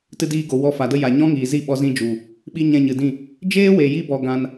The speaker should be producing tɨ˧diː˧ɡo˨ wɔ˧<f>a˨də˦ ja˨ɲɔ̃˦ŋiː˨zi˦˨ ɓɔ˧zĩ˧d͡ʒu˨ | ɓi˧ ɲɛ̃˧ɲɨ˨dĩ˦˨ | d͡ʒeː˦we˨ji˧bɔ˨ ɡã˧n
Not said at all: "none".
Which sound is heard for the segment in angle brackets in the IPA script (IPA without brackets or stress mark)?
f